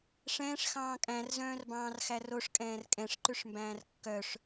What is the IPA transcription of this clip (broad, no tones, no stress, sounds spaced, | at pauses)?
ʂ ɛ̃ː ʂ x ɑ̃ː kʼ æ̃ r z œ̃ː r b ɑ̃ː r x æ r o ʂ kʼ ɛ̃ː r kʼ ɛ̃ ʂ ǃ ʉ ʂ m b æ̃ː r kː œ ʂ